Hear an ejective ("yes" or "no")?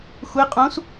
yes